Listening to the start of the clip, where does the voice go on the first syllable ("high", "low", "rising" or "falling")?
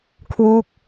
falling